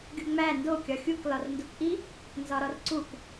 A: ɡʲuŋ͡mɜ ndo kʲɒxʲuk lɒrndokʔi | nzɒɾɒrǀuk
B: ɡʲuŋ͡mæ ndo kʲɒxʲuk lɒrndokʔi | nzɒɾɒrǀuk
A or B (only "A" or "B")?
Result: B